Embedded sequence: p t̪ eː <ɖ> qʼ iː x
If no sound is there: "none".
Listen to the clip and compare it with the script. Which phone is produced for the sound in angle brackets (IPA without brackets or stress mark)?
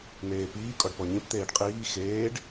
ɖ